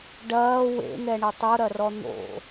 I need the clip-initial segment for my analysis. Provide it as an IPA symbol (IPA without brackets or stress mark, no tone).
ɖ